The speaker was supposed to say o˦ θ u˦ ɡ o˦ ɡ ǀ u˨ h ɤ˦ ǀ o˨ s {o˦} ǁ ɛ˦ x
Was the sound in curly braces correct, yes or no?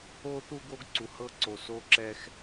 yes